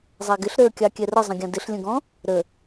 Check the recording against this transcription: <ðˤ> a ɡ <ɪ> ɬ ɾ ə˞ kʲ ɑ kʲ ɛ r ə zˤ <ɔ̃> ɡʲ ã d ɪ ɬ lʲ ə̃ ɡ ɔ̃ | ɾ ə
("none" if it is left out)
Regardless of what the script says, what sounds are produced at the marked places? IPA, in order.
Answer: zˤ, ɪ, ə̃

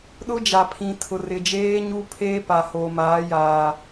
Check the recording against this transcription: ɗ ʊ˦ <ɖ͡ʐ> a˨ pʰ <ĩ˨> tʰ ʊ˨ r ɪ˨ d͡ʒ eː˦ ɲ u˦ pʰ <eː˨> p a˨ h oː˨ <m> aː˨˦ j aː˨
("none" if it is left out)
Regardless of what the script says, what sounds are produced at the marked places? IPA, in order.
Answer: d͡ʒ, ĩ˨, eː˦, m

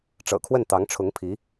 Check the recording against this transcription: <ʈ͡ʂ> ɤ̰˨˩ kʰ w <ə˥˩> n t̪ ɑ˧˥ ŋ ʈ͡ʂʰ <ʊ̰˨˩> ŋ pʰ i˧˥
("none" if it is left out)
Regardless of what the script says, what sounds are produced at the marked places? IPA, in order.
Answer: ʈ͡ʂ, ə˥˩, ʊ˧˥

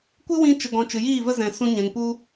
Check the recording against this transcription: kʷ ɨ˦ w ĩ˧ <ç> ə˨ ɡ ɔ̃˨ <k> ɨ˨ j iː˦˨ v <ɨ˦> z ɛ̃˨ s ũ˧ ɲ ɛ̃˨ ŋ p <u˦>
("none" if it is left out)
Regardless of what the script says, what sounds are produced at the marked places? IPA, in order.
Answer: t͡ʃ, t͡ʃ, ə˦, u˦

